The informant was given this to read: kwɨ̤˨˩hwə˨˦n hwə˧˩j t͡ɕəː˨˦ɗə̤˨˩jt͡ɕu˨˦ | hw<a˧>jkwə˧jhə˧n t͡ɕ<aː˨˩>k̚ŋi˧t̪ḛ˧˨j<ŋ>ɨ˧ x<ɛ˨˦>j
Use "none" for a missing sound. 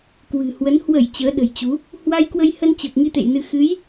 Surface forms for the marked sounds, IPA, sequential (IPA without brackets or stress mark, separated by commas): a˧, əː˨˩, n, ɨ˨˦